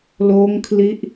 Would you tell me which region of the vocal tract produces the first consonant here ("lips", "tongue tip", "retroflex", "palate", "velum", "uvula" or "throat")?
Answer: tongue tip